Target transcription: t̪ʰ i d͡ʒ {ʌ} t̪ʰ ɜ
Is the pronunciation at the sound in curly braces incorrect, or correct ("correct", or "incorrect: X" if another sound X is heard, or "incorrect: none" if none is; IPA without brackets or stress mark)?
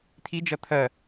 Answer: correct